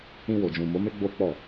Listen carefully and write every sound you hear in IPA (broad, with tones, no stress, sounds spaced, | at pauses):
ĩ˧ w o˨ d͡ʒ ũ˨ m o˨˦ m e˦ ɡ͡b o˦ k͡p ɔ˦˨